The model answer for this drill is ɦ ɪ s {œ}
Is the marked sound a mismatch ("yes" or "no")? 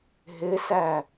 yes